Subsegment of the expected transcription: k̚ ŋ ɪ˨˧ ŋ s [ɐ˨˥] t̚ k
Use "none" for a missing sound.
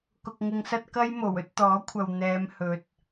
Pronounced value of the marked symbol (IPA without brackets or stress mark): ɐ˥